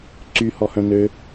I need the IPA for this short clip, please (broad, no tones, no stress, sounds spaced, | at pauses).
ǀ y h ɔ h œ̃ n ø